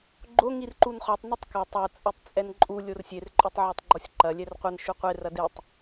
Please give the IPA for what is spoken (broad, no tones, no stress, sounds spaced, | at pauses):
ɡ͡ǃ o ŋ i r ǃ u n χ ɔ tˤ n ɨ tˤ k ɐ tˤ o t͡sʼ ɛ tˤ t͡sʼ ɛ n ǃʼ u lʲ o r sʲ e r ǃʼ o tˤ ʕ a tˤ ɡ͡ǃ ɔ sʲ ǃ ɐ lʲ ɛ r qʷ ɘ n ʃ u qʷ e r ɐ d e tˤ